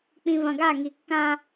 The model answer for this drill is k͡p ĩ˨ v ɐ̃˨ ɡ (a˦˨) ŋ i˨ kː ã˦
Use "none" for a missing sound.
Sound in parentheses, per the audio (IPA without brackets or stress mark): a˦˨